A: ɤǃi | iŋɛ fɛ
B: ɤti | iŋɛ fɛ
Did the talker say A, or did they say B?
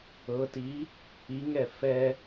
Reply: B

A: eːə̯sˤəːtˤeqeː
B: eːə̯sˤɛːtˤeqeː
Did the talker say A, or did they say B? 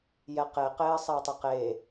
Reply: A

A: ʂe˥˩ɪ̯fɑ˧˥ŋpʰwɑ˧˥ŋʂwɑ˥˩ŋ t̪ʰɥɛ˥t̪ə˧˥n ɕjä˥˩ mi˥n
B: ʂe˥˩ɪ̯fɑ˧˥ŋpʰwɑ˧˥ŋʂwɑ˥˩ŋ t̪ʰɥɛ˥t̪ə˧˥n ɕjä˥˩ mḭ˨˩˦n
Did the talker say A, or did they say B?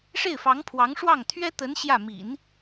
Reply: B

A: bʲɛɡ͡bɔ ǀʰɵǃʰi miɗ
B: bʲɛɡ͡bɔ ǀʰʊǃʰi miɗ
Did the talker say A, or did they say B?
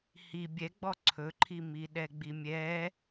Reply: A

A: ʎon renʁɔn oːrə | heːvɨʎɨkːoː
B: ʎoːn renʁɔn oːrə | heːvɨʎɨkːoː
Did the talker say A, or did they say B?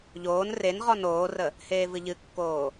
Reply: B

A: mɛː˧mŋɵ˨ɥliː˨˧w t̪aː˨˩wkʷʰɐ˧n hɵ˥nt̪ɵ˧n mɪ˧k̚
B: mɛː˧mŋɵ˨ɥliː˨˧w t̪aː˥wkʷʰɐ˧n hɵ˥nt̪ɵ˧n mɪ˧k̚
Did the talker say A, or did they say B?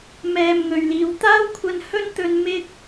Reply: B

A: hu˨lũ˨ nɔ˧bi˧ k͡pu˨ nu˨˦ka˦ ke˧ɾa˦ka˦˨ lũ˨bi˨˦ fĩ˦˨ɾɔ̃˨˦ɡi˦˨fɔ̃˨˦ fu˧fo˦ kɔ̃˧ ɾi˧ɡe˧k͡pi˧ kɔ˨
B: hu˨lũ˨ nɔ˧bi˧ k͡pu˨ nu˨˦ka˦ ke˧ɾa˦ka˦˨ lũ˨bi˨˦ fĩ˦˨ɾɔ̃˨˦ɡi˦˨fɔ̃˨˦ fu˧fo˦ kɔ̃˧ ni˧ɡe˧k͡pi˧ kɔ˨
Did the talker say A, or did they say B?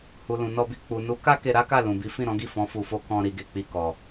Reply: A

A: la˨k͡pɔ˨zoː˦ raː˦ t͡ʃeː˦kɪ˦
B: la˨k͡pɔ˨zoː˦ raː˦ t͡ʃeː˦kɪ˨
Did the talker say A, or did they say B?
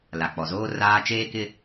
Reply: A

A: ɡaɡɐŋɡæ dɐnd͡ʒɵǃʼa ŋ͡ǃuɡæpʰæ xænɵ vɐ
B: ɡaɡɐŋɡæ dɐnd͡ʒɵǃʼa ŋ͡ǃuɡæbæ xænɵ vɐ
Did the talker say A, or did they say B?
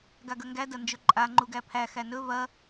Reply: A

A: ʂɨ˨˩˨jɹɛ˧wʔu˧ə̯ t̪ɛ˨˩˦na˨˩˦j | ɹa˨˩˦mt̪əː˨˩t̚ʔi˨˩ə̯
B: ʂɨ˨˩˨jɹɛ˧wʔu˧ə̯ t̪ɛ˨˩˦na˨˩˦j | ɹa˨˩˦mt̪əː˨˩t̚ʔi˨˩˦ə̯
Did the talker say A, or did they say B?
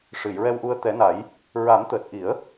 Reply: B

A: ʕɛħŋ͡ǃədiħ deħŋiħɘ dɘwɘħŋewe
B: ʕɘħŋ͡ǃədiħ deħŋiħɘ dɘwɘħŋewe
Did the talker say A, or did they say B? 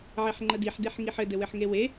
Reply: A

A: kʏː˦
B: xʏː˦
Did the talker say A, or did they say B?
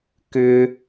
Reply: A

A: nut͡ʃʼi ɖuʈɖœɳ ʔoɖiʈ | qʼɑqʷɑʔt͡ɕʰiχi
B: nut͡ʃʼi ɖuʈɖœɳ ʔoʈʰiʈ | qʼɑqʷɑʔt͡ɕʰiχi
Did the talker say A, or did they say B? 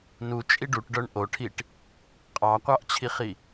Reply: B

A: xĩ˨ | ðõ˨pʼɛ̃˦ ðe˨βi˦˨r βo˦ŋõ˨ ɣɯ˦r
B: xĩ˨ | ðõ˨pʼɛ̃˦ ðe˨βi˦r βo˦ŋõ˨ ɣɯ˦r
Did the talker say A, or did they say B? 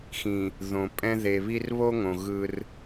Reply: B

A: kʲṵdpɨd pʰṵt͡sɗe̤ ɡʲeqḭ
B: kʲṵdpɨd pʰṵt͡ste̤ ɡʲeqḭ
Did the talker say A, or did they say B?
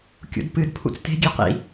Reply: B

